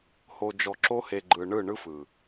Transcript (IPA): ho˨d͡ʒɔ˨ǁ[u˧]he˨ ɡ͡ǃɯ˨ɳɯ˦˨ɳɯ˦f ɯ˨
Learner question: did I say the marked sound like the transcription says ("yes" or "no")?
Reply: no